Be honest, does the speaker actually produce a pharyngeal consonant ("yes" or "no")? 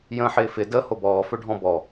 yes